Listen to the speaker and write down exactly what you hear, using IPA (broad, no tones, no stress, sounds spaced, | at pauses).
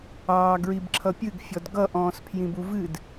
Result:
ɑː ɡ ɹ i b ǁʰ ʌ pʲ ɨ ɡ fʲ ɔ d ɡ ʌ ʔ ɔ̃ː s pʰ j ĩ b u v ɨ d